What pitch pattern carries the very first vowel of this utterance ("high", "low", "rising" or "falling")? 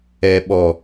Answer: low